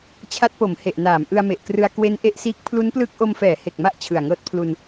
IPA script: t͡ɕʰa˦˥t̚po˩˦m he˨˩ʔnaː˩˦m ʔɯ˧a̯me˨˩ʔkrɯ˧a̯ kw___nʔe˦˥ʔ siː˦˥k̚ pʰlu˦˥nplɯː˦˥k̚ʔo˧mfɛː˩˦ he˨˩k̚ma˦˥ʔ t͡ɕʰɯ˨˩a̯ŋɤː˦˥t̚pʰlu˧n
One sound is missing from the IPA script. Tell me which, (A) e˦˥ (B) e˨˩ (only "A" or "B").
A